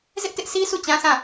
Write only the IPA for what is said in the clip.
z ɪ˦ ʔ t ɪ˦ ʔ s i˦ sʰ u˦˨ t͡ɕ ã˦ s ã˦˨

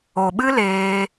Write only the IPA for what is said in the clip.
o˨ ɓ ɨ˦ l eː˧

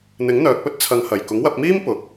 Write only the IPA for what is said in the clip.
n̪ ɪ˨˥ ŋ n̪ œː˨ k̚ p ɵ˥ t̚ t͡sʰ ɐ˨ ŋ h ɐ˨˩ j k ʊ˨˥ ŋ w ɐ˧ p̚ m iː˥ m p ʊ˨ k̚

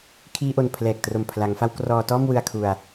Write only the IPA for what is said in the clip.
kʰ iː˧ ʔ o˨˩ n pʰ l ɛː˨˩ k̚ t r o˨˩ m pʰ l a˩˦ ŋ f a˦˥ w k r ɔː˧ t ɔː˥˩ m w ɯ˧ a̯ kʰ u˧ a̯

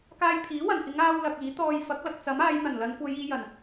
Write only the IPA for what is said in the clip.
k aː˧ j pʰ iː˨˥ w ɐ˨˩ n k ɪ˨˧ ŋ aː˥ w l ɐ˧ k̚ iː˨˥ t̪ ɔː˧ j f ɐ˨˥ k̚ l ɐ˨ k̚ t͡s ɐ˨˥ m aː˨˧ j n̪ ɐ˨˩ n l ɐ˨˧ n kʷ ɐ˨˧ j iː˨˧ j ɐ˨˩ n

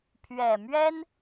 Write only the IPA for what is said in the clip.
pʰ ɥ ɛ˨˩ m ɥ ɛ˥ n

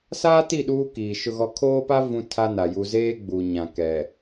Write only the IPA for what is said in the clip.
s aː˦ t i˦˨ ɗ uː˦ k iː˨ ʃ ʊ˦ ɣ ɔ˦ kʰ oː˦ p a˦ v ũ˦ tʰ a˦ n a˨ j u˨ z eː˦ ɡ͡b u˨ ɲ ã˨ k ɛ˨

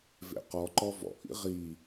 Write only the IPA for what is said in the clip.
v ḛ q ɔ ǃ ɔ v ɔ̰ ʔ ḭ ʁ i

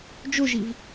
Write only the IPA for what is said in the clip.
d͡ʒ o ʒ i v

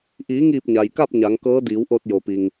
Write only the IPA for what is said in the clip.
ʔ iː˩˧ ŋ iː˧˩ p̚ ɲ a˩ j k a˥˨ p̚ ɲ a˩˧ ŋ k ɤː˧˥ d iː˩˧ w ʔ o˧ t̚ j o˩ p i˩ ŋ

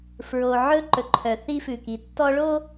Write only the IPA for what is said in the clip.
f ɹ o˨ ʕ ɵ˦ ǃ ɵ˨ ǃʰ œ˨ θ i˦ f ʉ˨ k i˨ tː ɔ˦ ɭ o˦

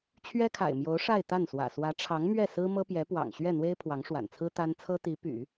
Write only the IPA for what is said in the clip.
t͡ɕʰ ɥ ɛ˥ kʰ a̰˨˩ ɪ̯ m j o˧˥ ʊ̯ ʂ a˥˧ ɪ̯ t̪ a˥˩ n s w ä̰˨˩ s w ä˧˥ ʈ͡ʂʰ ɑ˧˥ ŋ m ɥ ɛ˥˩ s ɹ̩˥ m ɤ˥ p j ɛ˧˥ p w ɑ̰˨˩ ŋ ɕ ɥ ɛ˥˩ n̪ w e˥ ɪ̯ pʰ w ɑ˧˥ ŋ ʂ w a̰˨˩ n t͡sʰ ɹ̩˥ t̪ a˥ n t͡sʰ ɤ˥ t̪ i˧˥ p y̰˨˩˦

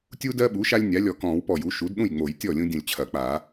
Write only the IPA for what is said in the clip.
tʲ u˦ d ɜ˦ ɓ u˩˥ ʃ a˦ lʲ nʲ a˩˥ lʲ ɔ˧˩ k ɔ̃˨˩˦ w p ɔ˧˩ j u˩˥ ʃ u˩˥ d ɗ ũ˥˩ j ŋ͡m o˨˩˦ j tʲ ɔ˥˩ lʲ ũ˦ dʲ ũ˧˩ lʲ t͡ɕʰ ɐ˨˩˦ k͡p a˨˩˦

